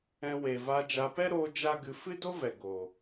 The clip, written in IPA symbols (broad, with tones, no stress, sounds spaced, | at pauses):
ɛ̃˧ w e˨ v a˧ d͡ʒ a˧ p ɛ˦ ɾ oː˧ d͡ʒ a˦ ɡ ɨ˧ f ɨ˦ d o˦ v ɛ˨ ɡ o˨